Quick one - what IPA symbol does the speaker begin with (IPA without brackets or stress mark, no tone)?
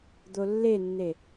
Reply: d̪